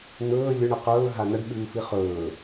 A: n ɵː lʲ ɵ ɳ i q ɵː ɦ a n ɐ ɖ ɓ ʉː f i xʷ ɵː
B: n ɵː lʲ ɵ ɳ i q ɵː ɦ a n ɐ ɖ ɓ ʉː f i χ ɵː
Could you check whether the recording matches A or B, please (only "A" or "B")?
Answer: B